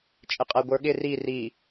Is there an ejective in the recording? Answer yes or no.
yes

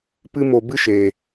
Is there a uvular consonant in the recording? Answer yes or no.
no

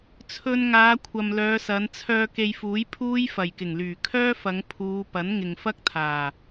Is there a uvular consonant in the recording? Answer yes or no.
no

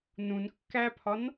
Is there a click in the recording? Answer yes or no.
no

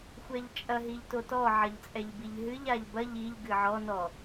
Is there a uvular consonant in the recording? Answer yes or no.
no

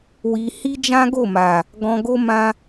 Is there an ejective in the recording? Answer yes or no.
no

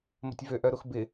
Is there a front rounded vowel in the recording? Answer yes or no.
yes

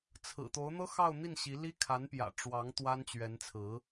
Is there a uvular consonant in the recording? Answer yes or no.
no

